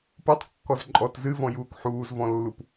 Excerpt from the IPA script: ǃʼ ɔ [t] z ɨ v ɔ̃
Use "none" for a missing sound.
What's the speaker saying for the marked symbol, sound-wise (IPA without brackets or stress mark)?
t